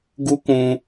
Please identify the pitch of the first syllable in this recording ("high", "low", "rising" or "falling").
high